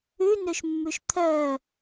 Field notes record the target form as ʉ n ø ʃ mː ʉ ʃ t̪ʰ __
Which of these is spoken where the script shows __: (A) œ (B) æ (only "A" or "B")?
A